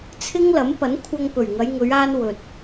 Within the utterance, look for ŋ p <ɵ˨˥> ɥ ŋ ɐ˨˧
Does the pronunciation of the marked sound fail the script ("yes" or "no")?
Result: yes